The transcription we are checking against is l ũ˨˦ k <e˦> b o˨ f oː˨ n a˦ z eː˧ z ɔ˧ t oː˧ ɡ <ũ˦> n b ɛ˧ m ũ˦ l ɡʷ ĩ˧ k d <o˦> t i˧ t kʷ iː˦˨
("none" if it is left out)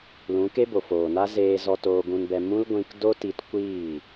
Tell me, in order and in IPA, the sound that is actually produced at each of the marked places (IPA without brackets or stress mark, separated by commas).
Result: e˦, ũ˧, o˦